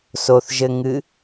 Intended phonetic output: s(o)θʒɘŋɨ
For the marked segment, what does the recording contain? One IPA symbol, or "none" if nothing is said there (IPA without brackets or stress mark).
o